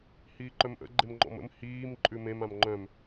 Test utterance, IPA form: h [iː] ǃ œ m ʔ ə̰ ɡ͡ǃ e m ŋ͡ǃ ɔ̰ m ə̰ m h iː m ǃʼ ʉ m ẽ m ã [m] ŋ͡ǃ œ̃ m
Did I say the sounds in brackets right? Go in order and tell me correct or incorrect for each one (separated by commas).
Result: correct, correct